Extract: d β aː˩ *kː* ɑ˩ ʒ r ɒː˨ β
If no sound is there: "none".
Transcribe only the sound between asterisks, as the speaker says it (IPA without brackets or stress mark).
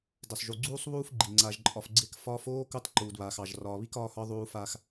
x